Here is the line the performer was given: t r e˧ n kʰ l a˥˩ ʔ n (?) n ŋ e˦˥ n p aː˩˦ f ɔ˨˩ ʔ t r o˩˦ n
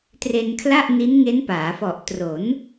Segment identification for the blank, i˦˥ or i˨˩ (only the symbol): i˦˥